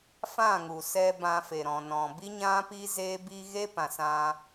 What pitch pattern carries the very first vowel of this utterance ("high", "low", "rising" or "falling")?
falling